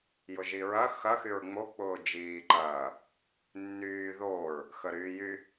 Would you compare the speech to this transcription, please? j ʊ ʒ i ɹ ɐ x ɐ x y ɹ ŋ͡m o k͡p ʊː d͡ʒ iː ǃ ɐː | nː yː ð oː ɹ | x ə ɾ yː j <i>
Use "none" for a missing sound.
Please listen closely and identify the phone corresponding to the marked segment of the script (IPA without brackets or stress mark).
y